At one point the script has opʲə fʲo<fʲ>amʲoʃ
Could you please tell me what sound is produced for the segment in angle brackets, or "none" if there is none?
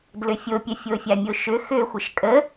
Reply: fʲ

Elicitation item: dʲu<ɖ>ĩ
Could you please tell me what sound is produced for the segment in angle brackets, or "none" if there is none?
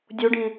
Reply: ɖ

